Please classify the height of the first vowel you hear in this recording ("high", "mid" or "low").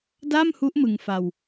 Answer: low